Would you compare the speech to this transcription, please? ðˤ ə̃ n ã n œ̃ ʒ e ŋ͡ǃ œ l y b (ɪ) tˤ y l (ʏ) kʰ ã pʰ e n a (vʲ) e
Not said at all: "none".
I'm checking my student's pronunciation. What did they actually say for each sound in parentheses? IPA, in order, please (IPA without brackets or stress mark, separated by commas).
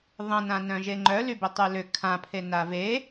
ɪ, ʏ, v